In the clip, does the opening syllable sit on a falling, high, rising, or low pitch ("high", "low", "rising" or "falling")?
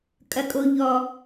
low